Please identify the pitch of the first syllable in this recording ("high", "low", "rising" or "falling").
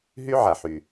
high